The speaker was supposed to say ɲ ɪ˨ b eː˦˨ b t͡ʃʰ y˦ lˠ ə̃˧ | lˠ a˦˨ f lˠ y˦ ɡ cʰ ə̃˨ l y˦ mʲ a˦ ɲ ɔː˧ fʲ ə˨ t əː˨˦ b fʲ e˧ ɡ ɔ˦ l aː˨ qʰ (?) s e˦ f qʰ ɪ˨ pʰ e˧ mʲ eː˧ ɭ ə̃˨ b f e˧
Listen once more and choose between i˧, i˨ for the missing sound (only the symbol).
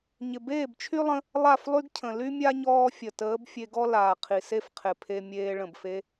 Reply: i˨